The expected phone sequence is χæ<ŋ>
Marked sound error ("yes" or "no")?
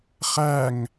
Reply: no